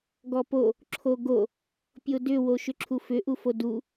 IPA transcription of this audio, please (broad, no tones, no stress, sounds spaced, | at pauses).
ɡ ɔ p o | ǁʰ o ɡ o | pʲ o d ʏ w o ʃ ʏ ǁʰ u f ʏ ʔ u f o d u